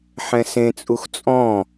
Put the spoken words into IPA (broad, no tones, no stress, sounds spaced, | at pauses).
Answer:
ħ ɛ̃ s ẽ t͡sʼ u x t͡sʼ ɔ̃